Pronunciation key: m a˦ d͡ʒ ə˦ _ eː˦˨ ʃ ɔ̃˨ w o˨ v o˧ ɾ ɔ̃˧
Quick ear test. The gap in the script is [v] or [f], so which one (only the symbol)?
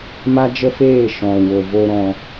f